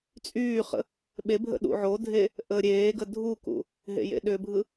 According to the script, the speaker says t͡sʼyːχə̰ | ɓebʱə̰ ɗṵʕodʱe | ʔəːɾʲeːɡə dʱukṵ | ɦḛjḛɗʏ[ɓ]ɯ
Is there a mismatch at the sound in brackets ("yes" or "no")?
yes